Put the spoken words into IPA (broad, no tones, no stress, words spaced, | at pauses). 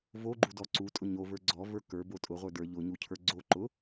voɡ͡ǃudɔ ǀutʼʊ ɲovə˞ ɡ͡ǀɔvə˞ kə˞bo tʼʊʁʷə˞ də˞ ʎʊɲucʰə˞ ɡ͡ǀo ǃʊ